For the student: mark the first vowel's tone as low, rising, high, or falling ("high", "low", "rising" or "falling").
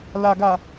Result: low